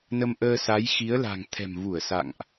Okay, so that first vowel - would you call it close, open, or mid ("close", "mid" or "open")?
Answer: mid